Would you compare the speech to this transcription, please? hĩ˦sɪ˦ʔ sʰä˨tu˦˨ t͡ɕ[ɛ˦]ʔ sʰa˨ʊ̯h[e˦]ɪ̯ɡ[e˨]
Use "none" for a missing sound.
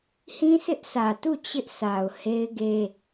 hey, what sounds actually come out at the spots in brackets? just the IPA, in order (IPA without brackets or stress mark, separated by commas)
ɪ˦, e˦, e˦